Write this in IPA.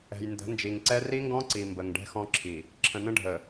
ɛ̤˨j ndə̤˨˦nd͡ʒi˨ŋǀɛ˦ ri˦ŋɡɔ̃˦ǀi˨ mbə˨ŋɖɛ̤˦xɔ̃˦ǁʰi˨ | ǁʰə̃˨nə̃˦ɖʱə˨

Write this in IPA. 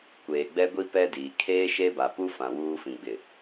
kʷeː˨ɡ͡bɛ˦ ɡʷi˦ pɛ˦diː˨ kʰeː˦ʃe˦ba˨pu˦ fã˨wuː˦fĩ˨ ɡ͡bɪ˨

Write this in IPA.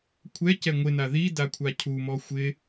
kʷʰɛcɛ ŋʷɪna ðidakʷʰa cʰumɔ xʷɪ

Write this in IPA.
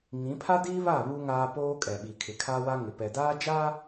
ŋĩ˨˦ pʰa˦diː˦βa˦˨ βu˦ŋaː˦ poː˦kʼɛ˨ɓi˨kʰɪ˨ kʰa˦wa˦ŋɪ˨ pɛ˨daː˦d͡ʒa˦

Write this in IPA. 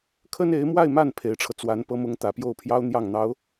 kʰə˥ne˧˥ɪ̯mwa˥˧ɪ̯ma˥˩n pʰe˧˥ɪ̯ʈ͡ʂʰɤ˧ t͡swa˧˥n pɤ˥mʊ˥ŋ t̪ä˨˩pjo˥˩ʊ̯pʰjɑ˥ʊ̯ n̪jɑ˥˩ŋn̪ɑ˧˥ʊ̯

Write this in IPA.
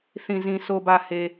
θĩ˨zĩ˨ sʰo˨bä˨ he˨

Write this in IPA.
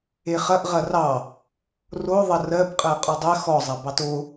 eχɐʔ ʁɐrɑ | ro ðˤɐrɜbqʼɜ qʼɔdˤɜ xɔzˤɐ bɑto

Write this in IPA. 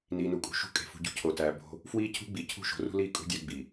niː˨nu˨kʼṳ˨ ʃṳ˦ kʼe̤˨fṳ˨ɟṳ˦ cʰo˨tæː˨ bo̤˦ | fwiː˦cʰṳ˦ɡ͡bi˨ cʰṳ˦˨ʃo̤˨rṳ˦liː˦ kʼṳ˦dʲæ˦ ɡ͡bi˨

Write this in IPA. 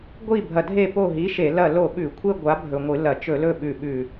ɡʷi˦˨ bʱɐ˨˩dʱe˦˨po˦˨ ɦi˨˥ʃe˧˩˧ lɐ˦˨lo˦˨ɓʉ˧˩˧kʷʰe˥ ɡʷa˨˥bʱɵ˨˩ŋʷɨ˧˩˧ lɐ˧˩˧t͡ʃɵ˧˩˧lɵ˦˨ ɓʉ˨˩ ɓʉ˨˩

